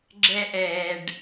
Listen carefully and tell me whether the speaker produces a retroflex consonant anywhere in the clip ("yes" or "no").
yes